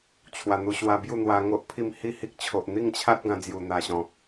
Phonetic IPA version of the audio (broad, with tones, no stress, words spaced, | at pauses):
t͡ɕʰwa˨˩n̪u˧ɕwa˧ bju˥˧n̪wa˧ŋo˦ʔpʰi˥˧m hi˥˧hi˦k̚t͡ɕʰo˨ʔ n̪i˥˧ŋt͡ɕʰa˦t̚ ɡã˧d͡zju˨˩ n̪a˨˩ɕɔ̃˨˩